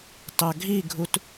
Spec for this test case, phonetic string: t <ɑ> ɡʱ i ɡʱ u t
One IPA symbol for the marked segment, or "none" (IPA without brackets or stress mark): ɑ